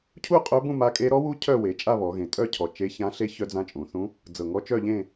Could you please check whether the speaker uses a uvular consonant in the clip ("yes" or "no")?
yes